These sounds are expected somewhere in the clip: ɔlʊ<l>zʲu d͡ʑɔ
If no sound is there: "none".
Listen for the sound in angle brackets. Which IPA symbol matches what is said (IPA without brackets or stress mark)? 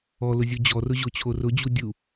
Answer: none